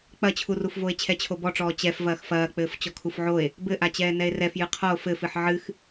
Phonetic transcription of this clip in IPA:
k͡pɐt͡ɕʰurufvoe̯ t͡ɕʰɛt͡ɕʰobɔʈ͡ʂɔː t͡ɕɛf vɐːxfɐːk͡pɘːf t͡ɕɔkʰufʕoe̯ | bɘʔat͡ɕɛː nɛe̯rɛf jɨqʰɔo̯ fɘfɨħ ʕɨx

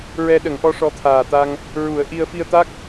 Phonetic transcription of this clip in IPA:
ɹɛ˧ɗə˨˩˦ŋʔɔ˧˥ ʂɔ˧˥t̪ʰaː˨˩t̪a˧ŋ | ɹu˨˩˦ə̯ʔi˧ə̯ fi˧ə̯t̪a˦˥k̚

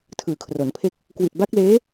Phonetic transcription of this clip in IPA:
tʰɯː˨˩kʰro˩˦npʰe˥˩k̚ | kwi˨˩t̚ba˦˥k̚leː˦˥

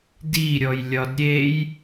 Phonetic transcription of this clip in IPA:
diɾʲɔj lʲɒdɾʲej

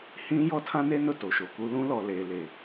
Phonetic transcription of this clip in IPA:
hĩ˦ jɔ˦tʰã˦ne˦nʊ˦˨ to˨ʃo˨ku˦ lũ˦lɔ˨ leː˨le˨

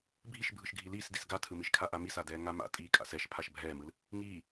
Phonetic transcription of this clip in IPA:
bʱiʃbʱɯʃɡʱi liːsdis ɡatʰɯmiʃkʰa ʔamisadɛː ŋama̰ tʼiːkʼa̰sɛʃ pʰaʃbʱɛːmɯl | ŋiː

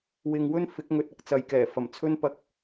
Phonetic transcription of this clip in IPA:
wɪ˨ŋwɵ˥n fɪ˨˥k̚ŋɵ˨˥t̚ɐ˨k̚ t͡sɐ˨jkɛː˨˩fɐ˨˩m t͡sʰɵ˥n pɐ˧k̚

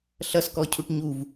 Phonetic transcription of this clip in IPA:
ɬʌs kɔcʰuʈɲuv

